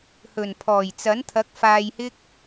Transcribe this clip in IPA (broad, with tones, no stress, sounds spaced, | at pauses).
h ɵ˨˩ n pʰ ɔː˨˩ j t͡s ɐ˨˥ n t̪ʰ ɐ˨˥ k̚ f aː˧ j h ɪ˥ k̚